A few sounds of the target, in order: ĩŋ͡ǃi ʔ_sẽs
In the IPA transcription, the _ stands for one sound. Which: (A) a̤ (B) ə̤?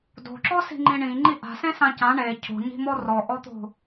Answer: A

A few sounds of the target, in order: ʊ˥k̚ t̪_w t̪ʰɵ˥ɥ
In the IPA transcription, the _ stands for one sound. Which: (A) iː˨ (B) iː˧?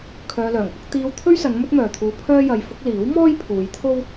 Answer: B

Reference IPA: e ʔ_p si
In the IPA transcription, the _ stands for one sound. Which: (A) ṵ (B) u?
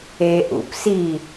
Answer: A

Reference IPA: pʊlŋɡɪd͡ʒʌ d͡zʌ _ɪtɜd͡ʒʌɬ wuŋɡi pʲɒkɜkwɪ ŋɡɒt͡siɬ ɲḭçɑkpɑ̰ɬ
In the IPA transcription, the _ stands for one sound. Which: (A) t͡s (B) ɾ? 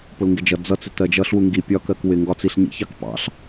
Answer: A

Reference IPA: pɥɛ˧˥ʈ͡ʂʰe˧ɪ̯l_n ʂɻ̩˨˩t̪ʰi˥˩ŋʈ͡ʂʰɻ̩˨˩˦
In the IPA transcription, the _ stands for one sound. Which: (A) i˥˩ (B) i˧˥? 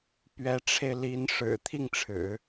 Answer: B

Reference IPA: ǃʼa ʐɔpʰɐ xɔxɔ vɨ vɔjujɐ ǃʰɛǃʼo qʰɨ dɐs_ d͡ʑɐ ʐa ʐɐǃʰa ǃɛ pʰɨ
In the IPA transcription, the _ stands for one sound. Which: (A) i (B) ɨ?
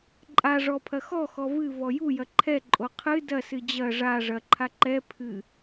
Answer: B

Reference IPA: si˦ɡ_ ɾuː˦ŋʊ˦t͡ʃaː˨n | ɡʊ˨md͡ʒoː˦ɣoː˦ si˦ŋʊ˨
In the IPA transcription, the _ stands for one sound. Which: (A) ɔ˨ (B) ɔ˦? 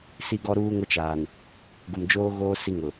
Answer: B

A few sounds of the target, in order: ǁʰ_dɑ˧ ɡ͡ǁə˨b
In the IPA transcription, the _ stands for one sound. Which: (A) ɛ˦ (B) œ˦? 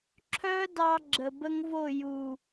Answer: B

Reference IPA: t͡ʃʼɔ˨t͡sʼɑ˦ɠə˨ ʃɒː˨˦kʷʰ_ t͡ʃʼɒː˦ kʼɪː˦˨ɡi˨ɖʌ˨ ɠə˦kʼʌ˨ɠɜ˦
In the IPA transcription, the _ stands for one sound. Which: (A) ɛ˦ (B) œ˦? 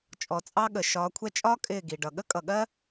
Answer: A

